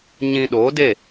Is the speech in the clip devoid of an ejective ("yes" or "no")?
yes